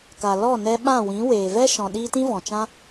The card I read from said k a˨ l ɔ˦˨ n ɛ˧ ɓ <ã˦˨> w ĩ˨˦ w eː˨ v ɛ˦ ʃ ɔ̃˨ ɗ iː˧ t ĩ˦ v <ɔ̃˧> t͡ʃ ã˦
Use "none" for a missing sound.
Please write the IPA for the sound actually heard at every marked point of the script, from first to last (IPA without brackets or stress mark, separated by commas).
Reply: ã˦˨, ɔ̃˨